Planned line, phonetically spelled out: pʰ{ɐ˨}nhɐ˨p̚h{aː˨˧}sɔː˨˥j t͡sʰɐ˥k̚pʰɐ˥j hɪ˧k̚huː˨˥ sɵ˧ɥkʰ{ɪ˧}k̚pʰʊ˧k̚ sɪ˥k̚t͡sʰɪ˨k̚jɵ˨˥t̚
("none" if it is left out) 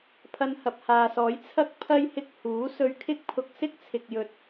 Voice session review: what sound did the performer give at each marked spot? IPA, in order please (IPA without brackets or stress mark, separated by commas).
ɐ˧, aː˨, ɪ˥